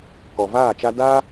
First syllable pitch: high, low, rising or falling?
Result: low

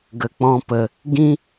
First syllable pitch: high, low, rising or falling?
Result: low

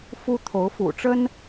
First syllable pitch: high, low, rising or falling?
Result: high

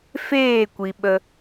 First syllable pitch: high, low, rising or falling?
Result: falling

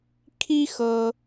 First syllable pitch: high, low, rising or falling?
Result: high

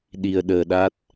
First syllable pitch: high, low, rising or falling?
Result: low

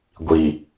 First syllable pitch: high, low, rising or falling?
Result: low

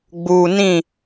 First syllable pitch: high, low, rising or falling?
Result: low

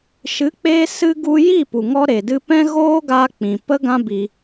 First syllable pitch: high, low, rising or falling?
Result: rising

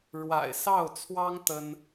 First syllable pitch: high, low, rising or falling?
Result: low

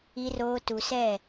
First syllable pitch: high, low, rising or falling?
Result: low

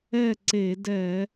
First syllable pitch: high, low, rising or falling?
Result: falling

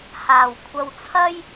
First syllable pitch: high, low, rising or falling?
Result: low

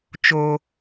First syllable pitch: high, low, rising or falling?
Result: high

